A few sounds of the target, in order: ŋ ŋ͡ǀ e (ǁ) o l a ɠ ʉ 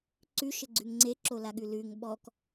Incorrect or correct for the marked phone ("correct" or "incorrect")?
correct